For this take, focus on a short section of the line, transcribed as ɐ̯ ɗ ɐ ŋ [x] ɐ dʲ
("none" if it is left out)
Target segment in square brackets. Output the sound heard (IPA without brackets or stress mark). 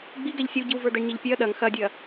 x